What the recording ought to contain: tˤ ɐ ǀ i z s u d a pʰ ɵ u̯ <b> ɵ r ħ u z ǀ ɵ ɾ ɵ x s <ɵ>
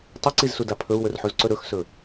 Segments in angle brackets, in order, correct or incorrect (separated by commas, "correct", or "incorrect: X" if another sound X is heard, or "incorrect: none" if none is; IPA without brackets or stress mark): incorrect: w, correct